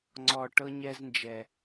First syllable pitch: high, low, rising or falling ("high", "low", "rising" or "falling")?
low